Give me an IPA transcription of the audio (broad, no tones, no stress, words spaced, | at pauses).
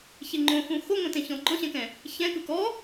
çeŋ͡ǃõxũ xoŋõtẽ çɔ̃ ɡ͡ǃɔ̃ɕɛ̃kɛ̃ | çɛ̃kɯ kɔ